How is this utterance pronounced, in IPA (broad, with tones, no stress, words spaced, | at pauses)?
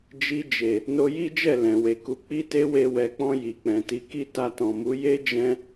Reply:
d͡ʒi˧d͡ʒe˨ | no˧ji˦d͡ʒɛ˦˨ lɛ̃˨we˨ku˨˦ k͡pi˦te˦we˧ wɛ˨k͡pɔ̃˧ ji˨k͡pɛ̃˨ti˨˦ki˦ ta˧tɔ̃˨mu˨˦ je˦d͡ʒɛ̃˧